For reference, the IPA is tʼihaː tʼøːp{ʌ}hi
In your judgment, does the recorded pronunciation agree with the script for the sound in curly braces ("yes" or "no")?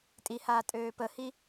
no